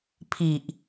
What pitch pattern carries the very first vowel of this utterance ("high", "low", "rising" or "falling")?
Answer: low